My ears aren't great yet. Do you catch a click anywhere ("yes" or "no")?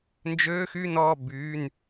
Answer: no